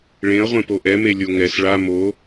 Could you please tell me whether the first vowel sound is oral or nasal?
nasal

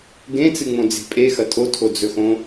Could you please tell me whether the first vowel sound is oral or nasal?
nasal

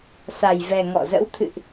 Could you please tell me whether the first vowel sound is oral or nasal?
oral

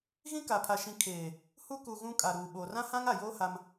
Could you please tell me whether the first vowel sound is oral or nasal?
nasal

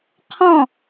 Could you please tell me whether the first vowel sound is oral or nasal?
nasal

